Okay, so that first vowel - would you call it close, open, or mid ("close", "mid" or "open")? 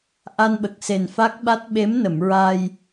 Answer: open